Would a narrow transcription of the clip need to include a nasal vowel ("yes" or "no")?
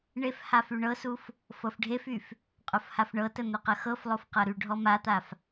no